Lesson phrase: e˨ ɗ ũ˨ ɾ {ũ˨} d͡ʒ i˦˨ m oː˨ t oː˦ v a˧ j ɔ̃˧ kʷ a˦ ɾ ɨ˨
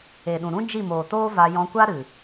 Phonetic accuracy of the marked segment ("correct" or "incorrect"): incorrect